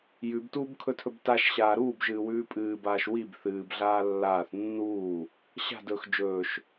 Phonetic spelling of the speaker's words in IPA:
jʉbtuːbkʰɵtʰɵb taʃɕaː ɾuːbʒɨːwʉː pʼɨːbaːʃ wib θɨːbɮaː lːaːθ nːuː | ɕa̤dɵːx d͡ʒɵːʃ

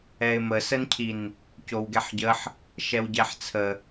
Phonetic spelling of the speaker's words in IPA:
ɛɪ̯məsəncʰin | cowɡɛħɟəħ | ʃɛwɟɛħt͡sʰə

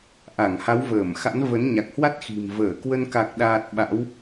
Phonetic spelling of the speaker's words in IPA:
ʔa˧˩ŋha˨˦wvəː˧˩mxa̰˧˥n və˨˦nɲa˨˩k̚hwa˦˥t̚ xi̤˨˩m vəː˧˩kwə˧n ka˨˩k̚ɗaː˨˩t̚ ɓa̰˧˥w

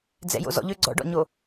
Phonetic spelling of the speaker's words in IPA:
d͡zɛ̰jo̰zɔ̰ʎø ɡ͡ǀɔ̰ɖɔ̰ɲo

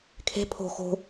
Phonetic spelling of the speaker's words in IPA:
kʰe̤ pʰo̤ xo̤

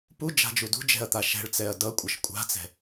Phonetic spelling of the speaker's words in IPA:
pud͡ʒa̤d͡ʒu dṳd͡ʒɛ̤ɐ̯t̪a ʃɛ̤ɭt͡sɛɐ̯ dʌkʷʼʌʃ kʷʼa̤t͡sɛ̤

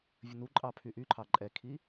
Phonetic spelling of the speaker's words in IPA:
vʲənuǃʼɑ pʰyʔyǃʰɑ ǃʼɛkʰi

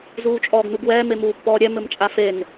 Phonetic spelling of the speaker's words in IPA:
zuːt͡ʃʼɔːɡnuɡwɛːm emuːpːɔːɾʲɛ mɘmt͡ʃʼafen

